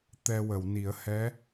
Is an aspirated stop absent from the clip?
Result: yes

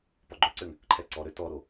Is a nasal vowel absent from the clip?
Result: yes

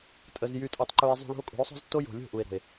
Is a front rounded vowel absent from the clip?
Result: no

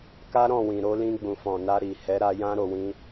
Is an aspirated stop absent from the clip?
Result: yes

